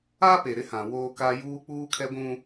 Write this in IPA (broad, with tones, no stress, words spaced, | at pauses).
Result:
a˦pe˨ɾɪ˨˦hã˨ woː˦ka˦ juː˦ k͡puː˦kʰɛ˦ɡʷũ˦